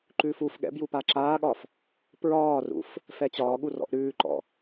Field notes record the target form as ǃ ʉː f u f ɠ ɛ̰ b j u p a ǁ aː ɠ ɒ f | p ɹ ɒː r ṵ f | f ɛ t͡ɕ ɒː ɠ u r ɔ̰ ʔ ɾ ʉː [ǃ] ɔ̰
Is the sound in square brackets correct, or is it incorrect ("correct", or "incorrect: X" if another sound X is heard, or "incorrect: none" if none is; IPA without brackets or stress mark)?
correct